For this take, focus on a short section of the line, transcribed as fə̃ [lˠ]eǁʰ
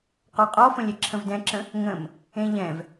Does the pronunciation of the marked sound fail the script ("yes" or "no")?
yes